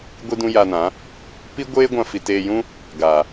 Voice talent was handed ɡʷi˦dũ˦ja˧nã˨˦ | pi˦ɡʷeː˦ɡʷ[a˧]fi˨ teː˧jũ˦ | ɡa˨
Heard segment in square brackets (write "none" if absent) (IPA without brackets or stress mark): ã˧